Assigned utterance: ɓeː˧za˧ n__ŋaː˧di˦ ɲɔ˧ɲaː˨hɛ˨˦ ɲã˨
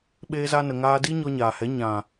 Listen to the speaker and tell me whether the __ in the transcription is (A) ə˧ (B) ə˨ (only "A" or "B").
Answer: B